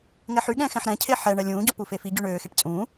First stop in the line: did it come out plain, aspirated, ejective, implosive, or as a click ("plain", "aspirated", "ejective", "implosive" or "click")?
implosive